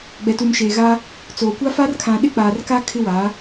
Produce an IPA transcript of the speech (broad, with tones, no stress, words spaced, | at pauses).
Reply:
ɡ͡bɛ˨tu˨mʃeː˨ɣa˦ | t͡soː˨kʷa˦fa˦r kʰã˨ɗɪ˦k͡paː˨rka˦ kʰɪ˦waː˨˦